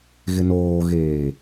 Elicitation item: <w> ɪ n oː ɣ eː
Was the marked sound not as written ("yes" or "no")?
yes